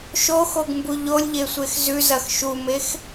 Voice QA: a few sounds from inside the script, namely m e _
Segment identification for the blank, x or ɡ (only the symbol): x